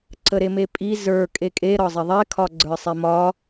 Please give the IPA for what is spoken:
ǀəɾemepʼi zə˞ kʼekʼe ɾɒzˤɪðˤe kʰɒɡ͡ǀə˞sˤimɒ

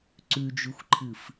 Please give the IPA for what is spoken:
ǀʉd͡ʒʉxʷǃʰɨf

